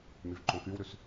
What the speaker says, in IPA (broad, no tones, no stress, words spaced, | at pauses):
myvǃõkywɾʉs